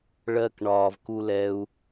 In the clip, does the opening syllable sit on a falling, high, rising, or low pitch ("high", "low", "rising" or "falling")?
low